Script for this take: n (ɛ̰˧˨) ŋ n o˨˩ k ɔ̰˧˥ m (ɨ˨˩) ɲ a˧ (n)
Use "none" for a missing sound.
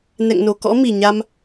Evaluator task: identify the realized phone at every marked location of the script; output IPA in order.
ɛ̰˧˨, i˨˩, m

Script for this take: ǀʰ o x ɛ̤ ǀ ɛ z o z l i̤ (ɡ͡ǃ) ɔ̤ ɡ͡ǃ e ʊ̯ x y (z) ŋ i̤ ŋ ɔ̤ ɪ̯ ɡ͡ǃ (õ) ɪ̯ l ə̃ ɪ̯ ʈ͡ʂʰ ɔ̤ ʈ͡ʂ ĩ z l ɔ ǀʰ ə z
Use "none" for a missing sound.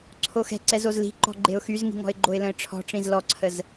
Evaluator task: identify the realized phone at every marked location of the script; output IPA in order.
ǃ, z, o

